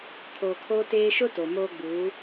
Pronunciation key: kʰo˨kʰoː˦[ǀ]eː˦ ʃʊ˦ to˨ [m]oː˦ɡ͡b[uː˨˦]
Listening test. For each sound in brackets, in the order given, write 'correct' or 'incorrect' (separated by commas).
incorrect, correct, correct